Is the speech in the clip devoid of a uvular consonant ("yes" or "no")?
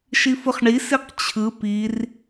no